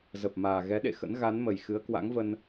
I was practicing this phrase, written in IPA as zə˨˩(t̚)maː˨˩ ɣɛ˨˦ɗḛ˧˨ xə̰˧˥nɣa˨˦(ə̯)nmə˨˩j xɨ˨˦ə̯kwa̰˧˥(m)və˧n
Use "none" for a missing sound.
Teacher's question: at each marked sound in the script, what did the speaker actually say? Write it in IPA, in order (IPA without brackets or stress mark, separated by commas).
p̚, none, ŋ